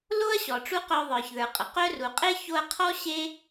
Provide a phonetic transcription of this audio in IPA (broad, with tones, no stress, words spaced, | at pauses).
lo˥ɐ̯ɕɔ˨ ʈ͡ʂu˥ qœ˦ðˤə˞˨çðə˞˨ qʼə˨ qœ˥ru˨ qʼe˥ ço˦ɐ̯qʰɔ˥ ɕe˥